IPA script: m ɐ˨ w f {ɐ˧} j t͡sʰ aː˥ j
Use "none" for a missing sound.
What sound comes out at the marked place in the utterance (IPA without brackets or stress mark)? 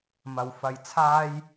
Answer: ɐ˧